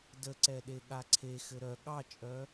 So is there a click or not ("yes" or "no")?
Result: yes